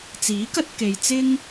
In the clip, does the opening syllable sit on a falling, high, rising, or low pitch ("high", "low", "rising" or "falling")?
rising